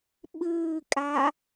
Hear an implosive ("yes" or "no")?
yes